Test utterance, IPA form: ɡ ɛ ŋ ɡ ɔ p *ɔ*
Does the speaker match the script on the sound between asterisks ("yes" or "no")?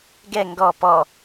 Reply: yes